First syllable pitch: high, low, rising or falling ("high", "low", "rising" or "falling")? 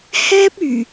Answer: high